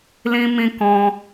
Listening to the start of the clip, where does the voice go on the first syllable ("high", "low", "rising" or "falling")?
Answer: high